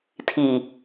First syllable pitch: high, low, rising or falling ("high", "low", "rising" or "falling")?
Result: low